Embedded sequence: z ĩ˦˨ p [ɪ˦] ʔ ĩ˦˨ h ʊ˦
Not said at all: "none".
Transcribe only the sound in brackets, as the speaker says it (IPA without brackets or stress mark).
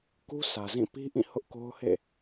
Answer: i˦